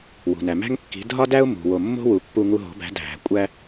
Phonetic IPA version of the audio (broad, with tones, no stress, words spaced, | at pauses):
wṳ˩næ˩mæ̤˥ŋ kːi̤˩˥ dʱɒ˥dæ˥ʊ̯ mṳ˩ wo˧˩mːo̤˥wu˩˥pːu˧ ŋu˧ɦo̤˩˥bæ̤˩˥ dʱæ̤˩kʷʼæ˧